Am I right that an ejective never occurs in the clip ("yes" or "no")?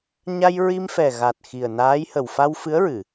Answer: yes